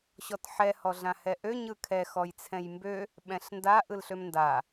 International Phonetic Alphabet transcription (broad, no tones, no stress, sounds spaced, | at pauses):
ɕ ɔ t ħ ɛ h ɔ ɮ ã h ɛ ʔ ø ɲ ɯ kʰ ɛ x ɔ j t͡sʰ ɛ̃ j m b ø | ɓ ɛ̃ ɬ n d a ʔ ɯ l ɬ ø m n d a